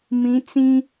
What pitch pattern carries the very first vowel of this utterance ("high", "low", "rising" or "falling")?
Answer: rising